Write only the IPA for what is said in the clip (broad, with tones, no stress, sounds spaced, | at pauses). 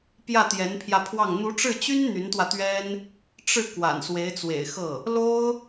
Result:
p j ä˥˩ t̪ j ɛ˧˥ n pʰ j ä˧ pʰ w ɑ˥˩ ŋ n̪ u˧˥ ʈ͡ʂ ɻ̩˥˩ t͡ɕ y˥ n n̪ y˧˥ n t̪ w ä˧ t̪ ɥ ɛ˥ n | ʈ͡ʂ ɻ̩˥˩ k w a̰˨˩ n s w e˧˥ ɪ̯ t͡s w ḛ˨˩ ɪ̯ x ɤ˥˩ | l o˥ ʊ̯